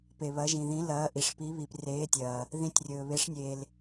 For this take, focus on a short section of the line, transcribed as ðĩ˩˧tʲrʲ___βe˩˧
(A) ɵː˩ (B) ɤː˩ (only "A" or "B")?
A